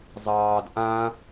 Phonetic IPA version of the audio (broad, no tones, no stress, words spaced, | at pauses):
zˤɑːd ʔã